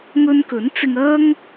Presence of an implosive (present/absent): absent